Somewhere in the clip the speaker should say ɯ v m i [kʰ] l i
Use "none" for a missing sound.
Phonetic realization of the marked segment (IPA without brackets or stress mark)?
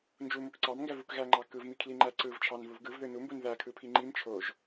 kʰ